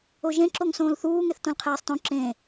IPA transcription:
o ʒ ẽ ǁ o ŋ s õː l θ uː ŋ e θ t õ l qʰ ɛː sˤ t õ ǁ ẽ

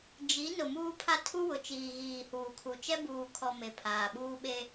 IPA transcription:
d͡ʒ i˨˦ n ʊ˨ m uː˦ pʰ a˦ tʰ u˦ w ʊ˨ t͡ʃ iː˨ ɣ iː˨ h uː˨ kʰ u˨ t͡ʃ ɛ˦ b uː˨ kʰ ɔ˨ m e˨ pʰ aː˨ ɓ uː˦ ɓ e˦

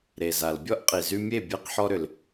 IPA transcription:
ɾ e˩ z a˩ l bʲ ɔ˥ ʔ qʼ i˩ z y˧ mʲ e˥˩ bʲ e˧ q ħ ɔ˧ ɾ ʏ˩ l

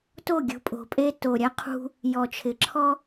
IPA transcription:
t o˦˨ ɡʲ ṳ˨ pʼ o̤˨ pʼ e˦ t o˨ ɾʲ a˦ qʰ ṳ˦ | j ɔ˨ t͡ʃʰ ɪ˨ ǁʰ ɔ˦

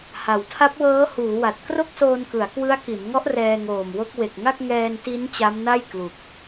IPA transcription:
h a˩˦ w tʰ a˦˥ p̚ w ɤː˦˥ h uː˩˦ w a˨˩ t̚ k r o˥˩ k̚ s oː˧ n k ɯ˩˦ a̯ k w ɯ˦˥ a̯ k i˩˦ n ŋ ɔ˦˥ ʔ r ɛː˧ ŋ oː˨˩ m w o˦˥ k̚ w e˨˩ k̚ ŋ a˥˩ k̚ ŋ ɛː˧ n t i˦˥ n t͡ɕ a˦˥ m n a˥˩ j k l u˨˩ k̚

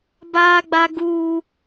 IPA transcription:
b aː˦ ɡ͡b a˦ ɡ uː˦

